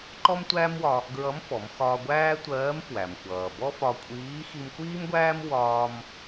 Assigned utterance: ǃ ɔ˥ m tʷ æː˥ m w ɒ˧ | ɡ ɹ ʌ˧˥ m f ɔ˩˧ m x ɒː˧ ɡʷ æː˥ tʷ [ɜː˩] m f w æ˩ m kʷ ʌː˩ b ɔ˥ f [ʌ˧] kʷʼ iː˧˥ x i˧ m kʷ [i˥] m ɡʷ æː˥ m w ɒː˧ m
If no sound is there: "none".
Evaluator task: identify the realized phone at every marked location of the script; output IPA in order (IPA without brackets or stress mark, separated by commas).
ɜː˧˥, ɒ˧, iː˥